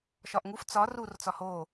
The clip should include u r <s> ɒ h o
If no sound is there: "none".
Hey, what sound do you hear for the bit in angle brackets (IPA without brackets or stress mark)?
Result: t͡s